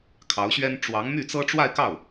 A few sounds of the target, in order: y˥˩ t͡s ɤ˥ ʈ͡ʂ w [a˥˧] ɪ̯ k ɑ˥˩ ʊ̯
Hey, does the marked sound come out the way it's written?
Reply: yes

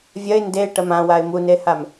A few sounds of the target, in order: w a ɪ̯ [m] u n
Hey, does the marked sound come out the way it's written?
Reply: yes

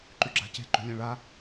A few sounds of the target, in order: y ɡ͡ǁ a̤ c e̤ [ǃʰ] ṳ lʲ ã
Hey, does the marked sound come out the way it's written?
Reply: no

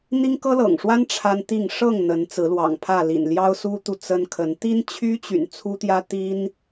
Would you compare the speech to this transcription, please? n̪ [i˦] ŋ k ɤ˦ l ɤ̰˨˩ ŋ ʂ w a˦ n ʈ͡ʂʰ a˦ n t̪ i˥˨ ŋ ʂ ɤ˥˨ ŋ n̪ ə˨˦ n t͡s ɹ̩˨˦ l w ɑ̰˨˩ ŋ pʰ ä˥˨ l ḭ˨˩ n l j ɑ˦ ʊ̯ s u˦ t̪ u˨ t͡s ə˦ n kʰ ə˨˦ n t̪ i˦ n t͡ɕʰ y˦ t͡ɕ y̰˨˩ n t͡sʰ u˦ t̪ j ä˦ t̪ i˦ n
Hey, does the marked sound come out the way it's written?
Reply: yes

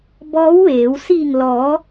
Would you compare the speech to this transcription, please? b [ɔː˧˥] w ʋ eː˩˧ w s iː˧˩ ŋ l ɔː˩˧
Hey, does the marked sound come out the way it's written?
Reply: yes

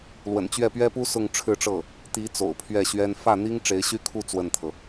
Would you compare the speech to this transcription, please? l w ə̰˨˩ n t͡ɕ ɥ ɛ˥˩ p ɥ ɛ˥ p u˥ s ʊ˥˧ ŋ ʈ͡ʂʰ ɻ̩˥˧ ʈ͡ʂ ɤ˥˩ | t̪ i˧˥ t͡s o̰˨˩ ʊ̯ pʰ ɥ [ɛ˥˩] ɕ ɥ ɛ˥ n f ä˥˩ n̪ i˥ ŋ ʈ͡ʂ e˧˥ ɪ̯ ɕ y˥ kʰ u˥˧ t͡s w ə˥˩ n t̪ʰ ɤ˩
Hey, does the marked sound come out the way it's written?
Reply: yes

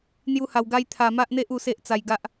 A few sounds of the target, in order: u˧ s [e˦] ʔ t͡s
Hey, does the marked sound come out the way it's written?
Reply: yes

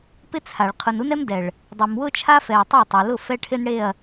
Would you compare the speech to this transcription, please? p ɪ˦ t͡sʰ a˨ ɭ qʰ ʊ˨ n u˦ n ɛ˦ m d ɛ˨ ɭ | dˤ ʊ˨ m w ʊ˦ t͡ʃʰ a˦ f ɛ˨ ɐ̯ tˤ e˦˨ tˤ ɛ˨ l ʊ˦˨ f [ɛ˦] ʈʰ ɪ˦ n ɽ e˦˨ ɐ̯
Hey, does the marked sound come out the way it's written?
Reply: yes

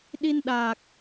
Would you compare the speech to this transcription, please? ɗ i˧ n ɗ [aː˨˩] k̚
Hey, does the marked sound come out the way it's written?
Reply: yes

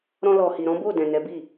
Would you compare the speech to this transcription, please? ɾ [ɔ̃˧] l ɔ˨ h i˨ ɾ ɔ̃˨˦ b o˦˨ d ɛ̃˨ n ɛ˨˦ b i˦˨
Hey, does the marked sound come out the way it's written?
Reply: yes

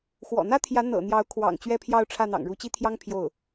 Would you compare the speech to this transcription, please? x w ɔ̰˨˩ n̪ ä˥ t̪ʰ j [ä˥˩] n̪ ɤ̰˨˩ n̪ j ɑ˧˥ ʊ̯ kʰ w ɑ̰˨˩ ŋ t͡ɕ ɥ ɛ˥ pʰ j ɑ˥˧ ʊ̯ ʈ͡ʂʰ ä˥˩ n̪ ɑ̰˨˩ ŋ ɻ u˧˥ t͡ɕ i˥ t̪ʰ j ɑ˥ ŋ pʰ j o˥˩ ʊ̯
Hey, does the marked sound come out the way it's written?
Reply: no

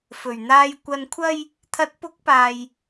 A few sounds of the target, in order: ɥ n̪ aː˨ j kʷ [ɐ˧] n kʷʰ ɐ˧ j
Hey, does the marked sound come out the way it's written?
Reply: no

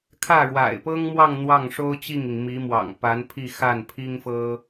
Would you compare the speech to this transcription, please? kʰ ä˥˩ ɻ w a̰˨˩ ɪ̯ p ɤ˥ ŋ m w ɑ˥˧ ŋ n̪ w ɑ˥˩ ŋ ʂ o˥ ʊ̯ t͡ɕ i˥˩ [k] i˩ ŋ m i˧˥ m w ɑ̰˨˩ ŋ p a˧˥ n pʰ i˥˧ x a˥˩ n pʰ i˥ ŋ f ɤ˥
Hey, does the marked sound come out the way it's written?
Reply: no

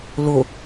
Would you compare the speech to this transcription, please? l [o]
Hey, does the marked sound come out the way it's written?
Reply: yes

